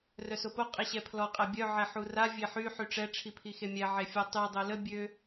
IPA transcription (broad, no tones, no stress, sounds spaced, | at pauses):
r œ s o p o qʼ i ɕ ɛ pʰ l ɔ qʼ ɛ bʲ œ ʕ ɛ ħ u r a vʲ e ħ y ħ y ʈ͡ʂ ɛ ʈ͡ʂʰ i pʰ i x e mʲ ɛ ʕ e fʲ ɔ tˤ y dˤ ø l ə bʲ ø